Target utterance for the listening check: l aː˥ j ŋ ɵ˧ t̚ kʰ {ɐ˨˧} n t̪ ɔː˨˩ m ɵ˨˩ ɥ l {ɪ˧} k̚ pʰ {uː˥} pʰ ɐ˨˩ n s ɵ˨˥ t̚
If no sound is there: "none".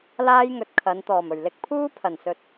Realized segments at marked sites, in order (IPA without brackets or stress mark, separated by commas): ɐ˨˧, ɪ˧, uː˥